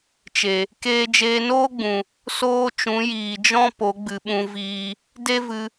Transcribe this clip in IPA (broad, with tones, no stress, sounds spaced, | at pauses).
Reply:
t͡ʃ e˨ | k eː˧ d͡ʒ eː˧ n oː˦ ɡ͡b ũ˨ | s oː˦ t͡ʃ ũ˨˦ j iː˨ d͡ʒ ɔ̃˦ p o˨˦ ɡ͡b ɨ˨ ɓ ũ˧ v iː˧ | d e˦ v ɨ˧